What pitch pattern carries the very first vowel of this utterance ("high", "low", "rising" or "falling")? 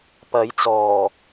rising